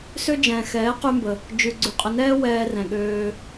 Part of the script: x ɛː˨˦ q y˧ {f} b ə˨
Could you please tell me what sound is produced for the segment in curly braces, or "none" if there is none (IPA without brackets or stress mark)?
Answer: m